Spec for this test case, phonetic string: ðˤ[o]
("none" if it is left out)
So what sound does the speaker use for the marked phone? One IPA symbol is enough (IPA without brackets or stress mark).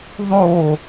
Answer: o